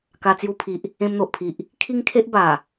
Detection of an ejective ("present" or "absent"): absent